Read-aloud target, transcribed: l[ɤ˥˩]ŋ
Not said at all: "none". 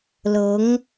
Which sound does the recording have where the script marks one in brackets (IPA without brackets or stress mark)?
ɤ˧˥